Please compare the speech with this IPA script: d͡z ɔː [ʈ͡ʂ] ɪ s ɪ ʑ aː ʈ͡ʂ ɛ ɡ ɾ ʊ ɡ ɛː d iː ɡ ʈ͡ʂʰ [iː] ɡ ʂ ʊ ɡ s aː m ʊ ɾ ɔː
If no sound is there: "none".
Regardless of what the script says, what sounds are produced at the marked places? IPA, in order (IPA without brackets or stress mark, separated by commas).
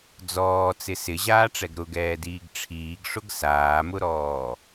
t͡s, iː